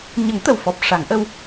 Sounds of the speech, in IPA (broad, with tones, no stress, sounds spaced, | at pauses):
ɲ ə˨˩˦ ŋ t̪ ə˨˩ w f ɔ˨˩ p̚ ʂ a˨˩˦ ŋ ʔ ə˧ w